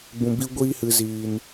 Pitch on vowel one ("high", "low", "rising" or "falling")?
low